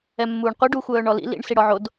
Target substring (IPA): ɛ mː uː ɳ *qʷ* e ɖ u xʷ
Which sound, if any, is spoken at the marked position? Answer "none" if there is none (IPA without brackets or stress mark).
qʷ